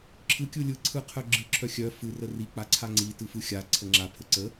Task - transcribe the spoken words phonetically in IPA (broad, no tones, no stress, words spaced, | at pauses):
ǁʰɯ kʲɯlʲɯ ǀʰɯqʰœɡ͡ǁɯ ǁʰœxʲœ fɯ rəri k͡paǀʰaŋ͡ǀi tɯfɯxʲa ǀʰəŋ͡ǁa pʰəǀə